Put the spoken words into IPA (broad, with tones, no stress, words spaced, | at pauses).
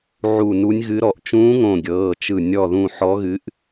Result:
ʕu˧˩nu˧˥nʲɣɨ˧˥ɾɔ˧˩ʔ t͡ʃũː˧˥ŋõ˧˩ɡʲɤː˩˧˩ t͡ʃɯ˧˩ nʲɔ˧˩ðũ˧˩ ħɔ˧˥ɣɨ˧˥ʔ